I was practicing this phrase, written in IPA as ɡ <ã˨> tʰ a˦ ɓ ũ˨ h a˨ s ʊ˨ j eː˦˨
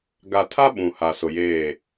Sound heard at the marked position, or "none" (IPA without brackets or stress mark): a˨